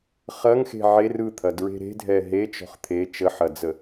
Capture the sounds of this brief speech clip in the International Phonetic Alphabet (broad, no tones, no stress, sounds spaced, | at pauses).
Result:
χ ɐ ŋ x e̤ ʕ e r ɯ t̪ʰ ɐ d ɹ e̤ ɾ e̤ dʱ ɛ ɦ e t͡ʃ ɔ̤ χ t̪ʰ e t͡ʃ ə ħ ɐ d͡z ə